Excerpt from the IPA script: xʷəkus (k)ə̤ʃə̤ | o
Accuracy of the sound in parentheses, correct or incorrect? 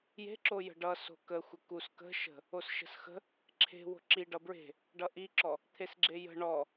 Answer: correct